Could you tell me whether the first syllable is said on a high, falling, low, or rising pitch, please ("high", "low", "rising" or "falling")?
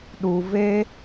low